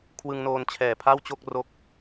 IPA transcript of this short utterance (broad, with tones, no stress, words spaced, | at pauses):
kʰwɯ˧ŋnoː˧nt͡ɕʰɛː˨˩pʰa˥˩w t͡ɕo˥˩k̚ro˦˥k̚